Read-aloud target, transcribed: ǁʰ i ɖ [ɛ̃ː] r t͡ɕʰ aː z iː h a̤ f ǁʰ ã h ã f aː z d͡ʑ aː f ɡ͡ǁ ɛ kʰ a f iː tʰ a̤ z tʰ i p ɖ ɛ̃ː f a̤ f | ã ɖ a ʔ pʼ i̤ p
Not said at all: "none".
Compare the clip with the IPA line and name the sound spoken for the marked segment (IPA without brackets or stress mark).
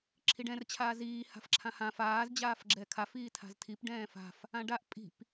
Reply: ɛ̃